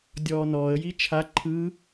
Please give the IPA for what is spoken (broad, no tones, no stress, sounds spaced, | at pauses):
dʲ ɔː n ɔː ə̯ j i t͡ʃʰ a ǃʰ ɯ